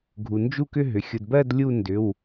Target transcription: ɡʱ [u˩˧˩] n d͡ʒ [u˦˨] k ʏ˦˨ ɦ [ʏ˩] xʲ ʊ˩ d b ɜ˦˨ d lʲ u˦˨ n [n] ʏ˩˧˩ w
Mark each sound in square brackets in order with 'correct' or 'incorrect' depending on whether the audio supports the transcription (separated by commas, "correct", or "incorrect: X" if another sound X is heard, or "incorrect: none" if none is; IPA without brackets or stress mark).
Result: incorrect: u˩, correct, correct, incorrect: d